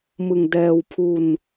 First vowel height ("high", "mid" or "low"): high